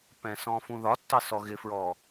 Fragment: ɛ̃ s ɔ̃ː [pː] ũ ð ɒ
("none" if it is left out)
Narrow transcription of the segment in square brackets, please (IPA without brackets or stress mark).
f